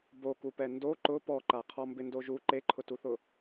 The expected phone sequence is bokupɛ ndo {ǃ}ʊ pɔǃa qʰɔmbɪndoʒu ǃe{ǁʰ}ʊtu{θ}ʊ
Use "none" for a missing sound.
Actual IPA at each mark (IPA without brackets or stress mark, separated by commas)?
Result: ǃ, ǃʰ, θ